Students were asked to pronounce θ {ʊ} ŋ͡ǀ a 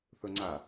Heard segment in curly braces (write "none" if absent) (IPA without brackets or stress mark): ʊ